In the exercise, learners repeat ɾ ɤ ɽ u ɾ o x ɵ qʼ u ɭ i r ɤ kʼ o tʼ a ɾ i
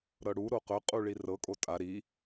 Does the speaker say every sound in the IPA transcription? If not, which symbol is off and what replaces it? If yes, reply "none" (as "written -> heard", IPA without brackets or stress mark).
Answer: x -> q